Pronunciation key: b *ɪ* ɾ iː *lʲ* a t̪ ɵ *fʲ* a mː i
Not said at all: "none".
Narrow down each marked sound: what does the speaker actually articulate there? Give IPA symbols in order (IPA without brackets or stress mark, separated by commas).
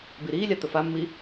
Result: i, lʲ, f